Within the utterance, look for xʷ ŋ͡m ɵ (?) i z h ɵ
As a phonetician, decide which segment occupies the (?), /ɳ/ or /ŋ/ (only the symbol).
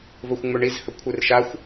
ɳ